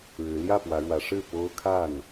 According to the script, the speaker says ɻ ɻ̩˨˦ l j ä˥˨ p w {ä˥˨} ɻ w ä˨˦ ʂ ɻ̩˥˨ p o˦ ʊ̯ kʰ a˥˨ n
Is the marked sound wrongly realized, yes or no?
yes